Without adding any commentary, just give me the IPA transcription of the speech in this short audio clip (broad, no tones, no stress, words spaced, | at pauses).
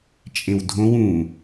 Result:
t͡ʃʼẽwdʱõw ũ